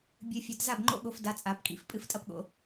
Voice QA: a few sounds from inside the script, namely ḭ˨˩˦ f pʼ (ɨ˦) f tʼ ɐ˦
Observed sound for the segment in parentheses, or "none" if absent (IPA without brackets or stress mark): ɨ˨˦